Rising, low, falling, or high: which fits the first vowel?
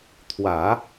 low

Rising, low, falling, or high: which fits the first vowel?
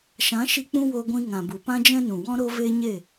rising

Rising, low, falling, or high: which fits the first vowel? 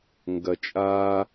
low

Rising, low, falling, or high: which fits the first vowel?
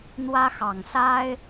high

